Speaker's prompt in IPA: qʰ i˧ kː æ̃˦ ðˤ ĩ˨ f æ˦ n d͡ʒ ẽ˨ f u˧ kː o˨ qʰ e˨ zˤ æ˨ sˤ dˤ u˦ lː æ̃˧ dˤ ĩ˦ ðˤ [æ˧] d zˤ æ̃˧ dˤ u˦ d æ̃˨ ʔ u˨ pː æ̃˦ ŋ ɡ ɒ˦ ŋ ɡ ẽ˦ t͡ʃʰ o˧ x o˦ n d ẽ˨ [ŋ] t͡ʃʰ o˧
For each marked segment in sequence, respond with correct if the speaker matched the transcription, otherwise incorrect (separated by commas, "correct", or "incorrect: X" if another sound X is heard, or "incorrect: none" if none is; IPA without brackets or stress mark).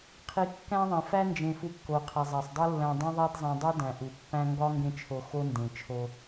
incorrect: æ˦, incorrect: none